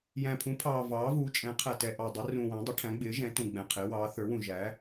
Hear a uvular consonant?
yes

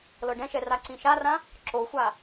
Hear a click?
yes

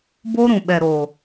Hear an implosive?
yes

